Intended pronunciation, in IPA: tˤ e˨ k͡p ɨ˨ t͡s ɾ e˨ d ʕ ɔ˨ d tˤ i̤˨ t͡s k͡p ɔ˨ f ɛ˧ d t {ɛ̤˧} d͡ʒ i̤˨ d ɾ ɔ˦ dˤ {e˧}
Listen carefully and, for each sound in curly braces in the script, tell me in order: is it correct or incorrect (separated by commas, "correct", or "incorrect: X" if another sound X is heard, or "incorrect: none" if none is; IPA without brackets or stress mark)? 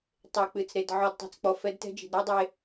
incorrect: ɛ̤˦, correct